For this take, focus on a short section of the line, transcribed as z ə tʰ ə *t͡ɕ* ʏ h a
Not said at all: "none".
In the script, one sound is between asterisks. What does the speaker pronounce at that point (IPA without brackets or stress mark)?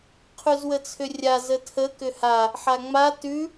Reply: k